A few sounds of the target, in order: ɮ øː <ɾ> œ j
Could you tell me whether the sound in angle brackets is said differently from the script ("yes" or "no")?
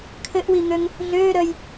no